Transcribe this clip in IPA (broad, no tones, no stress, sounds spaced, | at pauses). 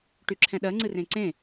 ʈ y ǁʰ ɛ̃ ɗ ɜ ŋ͡ǀ ɨ r ẽ ǀ ẽ